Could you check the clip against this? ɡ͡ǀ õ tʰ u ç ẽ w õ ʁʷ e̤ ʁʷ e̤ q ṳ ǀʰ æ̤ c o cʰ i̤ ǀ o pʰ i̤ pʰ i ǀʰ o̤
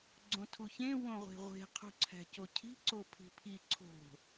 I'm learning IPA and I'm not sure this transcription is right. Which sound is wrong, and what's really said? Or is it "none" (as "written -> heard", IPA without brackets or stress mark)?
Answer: q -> qʰ